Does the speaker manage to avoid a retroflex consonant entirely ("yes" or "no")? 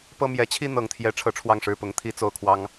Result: no